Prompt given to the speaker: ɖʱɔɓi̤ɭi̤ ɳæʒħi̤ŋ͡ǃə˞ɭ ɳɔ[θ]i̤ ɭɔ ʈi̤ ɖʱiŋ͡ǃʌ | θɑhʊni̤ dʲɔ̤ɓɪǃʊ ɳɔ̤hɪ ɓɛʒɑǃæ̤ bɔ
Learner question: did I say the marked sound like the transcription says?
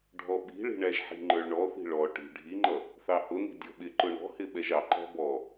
yes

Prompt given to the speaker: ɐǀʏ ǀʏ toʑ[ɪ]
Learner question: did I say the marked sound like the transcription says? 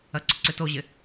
yes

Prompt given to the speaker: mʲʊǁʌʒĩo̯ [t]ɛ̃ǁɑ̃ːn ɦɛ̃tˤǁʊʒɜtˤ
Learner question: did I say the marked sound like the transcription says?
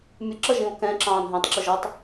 no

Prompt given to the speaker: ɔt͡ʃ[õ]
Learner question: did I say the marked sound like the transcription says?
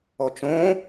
yes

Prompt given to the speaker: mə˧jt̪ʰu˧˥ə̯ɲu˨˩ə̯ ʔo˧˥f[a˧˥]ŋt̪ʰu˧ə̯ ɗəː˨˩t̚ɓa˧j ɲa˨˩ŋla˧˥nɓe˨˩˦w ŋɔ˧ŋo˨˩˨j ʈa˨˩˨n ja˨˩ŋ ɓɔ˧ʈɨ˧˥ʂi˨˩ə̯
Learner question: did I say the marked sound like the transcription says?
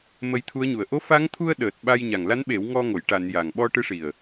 yes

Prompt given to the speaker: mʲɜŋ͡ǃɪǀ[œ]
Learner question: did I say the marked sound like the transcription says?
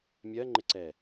no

